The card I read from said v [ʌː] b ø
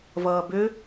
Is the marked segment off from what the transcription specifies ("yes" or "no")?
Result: no